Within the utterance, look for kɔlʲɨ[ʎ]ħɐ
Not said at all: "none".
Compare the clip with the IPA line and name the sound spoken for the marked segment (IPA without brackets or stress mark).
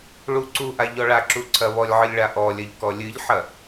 ʎ